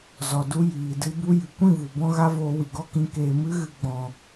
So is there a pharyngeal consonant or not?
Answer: no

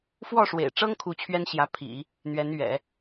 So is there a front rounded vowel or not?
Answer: no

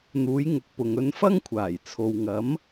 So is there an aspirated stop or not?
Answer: yes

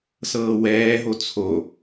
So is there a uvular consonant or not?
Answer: no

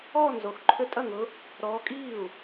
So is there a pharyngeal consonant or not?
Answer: no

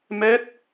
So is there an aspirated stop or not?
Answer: no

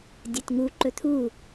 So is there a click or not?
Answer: yes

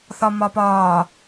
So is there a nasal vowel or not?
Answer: no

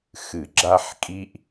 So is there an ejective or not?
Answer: yes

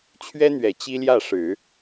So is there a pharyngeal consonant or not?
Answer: no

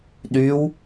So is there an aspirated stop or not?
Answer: no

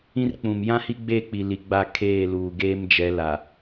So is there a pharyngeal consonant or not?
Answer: no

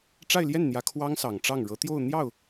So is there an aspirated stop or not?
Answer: yes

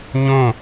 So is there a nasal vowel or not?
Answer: yes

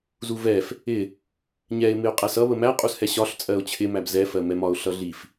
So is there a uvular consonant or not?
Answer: yes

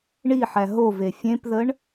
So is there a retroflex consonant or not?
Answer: yes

